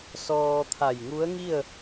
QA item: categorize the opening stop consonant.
aspirated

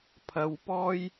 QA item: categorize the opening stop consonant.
aspirated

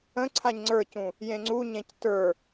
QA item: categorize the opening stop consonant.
click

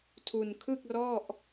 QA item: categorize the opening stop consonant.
aspirated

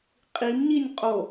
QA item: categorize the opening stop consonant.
ejective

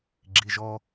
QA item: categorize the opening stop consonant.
click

